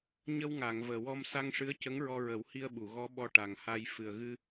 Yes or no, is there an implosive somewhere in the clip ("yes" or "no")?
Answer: yes